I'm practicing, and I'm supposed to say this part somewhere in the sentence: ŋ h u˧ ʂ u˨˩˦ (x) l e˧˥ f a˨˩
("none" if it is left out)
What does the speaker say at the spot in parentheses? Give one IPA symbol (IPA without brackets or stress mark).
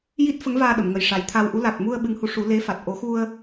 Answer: none